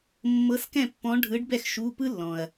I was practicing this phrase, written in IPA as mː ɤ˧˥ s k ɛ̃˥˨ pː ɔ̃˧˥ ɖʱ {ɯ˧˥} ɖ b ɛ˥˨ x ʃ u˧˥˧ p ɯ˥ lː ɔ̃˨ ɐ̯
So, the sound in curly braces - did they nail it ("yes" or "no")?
yes